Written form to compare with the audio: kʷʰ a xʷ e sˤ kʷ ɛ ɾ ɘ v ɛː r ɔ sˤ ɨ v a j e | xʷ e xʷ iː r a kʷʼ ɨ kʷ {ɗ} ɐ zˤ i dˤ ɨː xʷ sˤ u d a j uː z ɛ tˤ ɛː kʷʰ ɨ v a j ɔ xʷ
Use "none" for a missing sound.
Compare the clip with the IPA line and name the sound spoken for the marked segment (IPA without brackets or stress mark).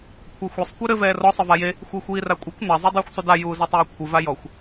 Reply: n